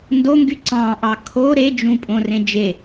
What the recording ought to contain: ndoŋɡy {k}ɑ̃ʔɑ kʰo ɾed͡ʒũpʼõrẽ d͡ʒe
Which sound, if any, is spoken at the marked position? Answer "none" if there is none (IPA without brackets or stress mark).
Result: ǀ